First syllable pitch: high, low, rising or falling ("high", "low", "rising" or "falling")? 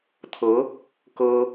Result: rising